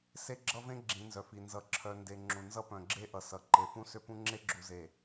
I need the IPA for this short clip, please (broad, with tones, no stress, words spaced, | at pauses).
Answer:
se˦ɡ͡ǁʌ˦vẽ˦ ɡ͡ǁĩ˨˦nzœ˨fi˨ nzʌ˨ ǁʰœ˨nde˨ ŋ͡ǁũ˨nzʌ˦ pœ̃˨ɡ͡ǁe˦ʔʌ˨ sʌ˨ ǃe˨fũ˦sʏ˦pũ˦ ŋ͡ǁe˦ɡ͡ǁu˨ze˨